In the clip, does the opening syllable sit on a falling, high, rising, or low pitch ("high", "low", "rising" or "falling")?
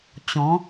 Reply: rising